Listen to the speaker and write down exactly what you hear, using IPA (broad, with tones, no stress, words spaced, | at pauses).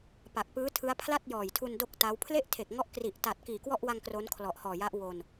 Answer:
pa˨˩k̚pɯː˦˥tʰɯ˦˥a̯ pʰla˥˩t̚jɔː˨˩jtʰu˧n do˥˩k̚ta˦˥w pʰle˥˩ʔtʰe˨˩k̚ŋɔ˦˥ʔkri˨˩ʔ ta˨˩t̚kiː˨˩kwɔ˥˩ʔwa˧ŋ kro˦˥nkʰlɔ˨˩ʔhɔː˨˩ja˦˥ʔ wo˧n